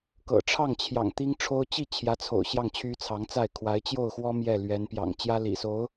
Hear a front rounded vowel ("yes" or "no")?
yes